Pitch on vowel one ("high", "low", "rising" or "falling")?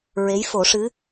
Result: rising